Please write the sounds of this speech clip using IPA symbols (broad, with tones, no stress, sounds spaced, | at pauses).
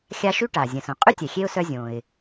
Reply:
xʲ a˦ ʃ y˥ ʈ a˩ zʲ ə̃˩ s õ˩ qʼ y˥ tʲ ɛ˩ xʲ e˦ ʊ̯ s œ˦ zʲ õ˩ ɪ̯